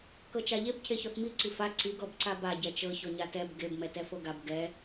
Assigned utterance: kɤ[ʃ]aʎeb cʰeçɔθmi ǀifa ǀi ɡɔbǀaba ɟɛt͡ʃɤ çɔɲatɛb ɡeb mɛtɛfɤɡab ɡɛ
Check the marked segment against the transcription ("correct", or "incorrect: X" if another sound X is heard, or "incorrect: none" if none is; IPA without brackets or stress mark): incorrect: t͡ʃ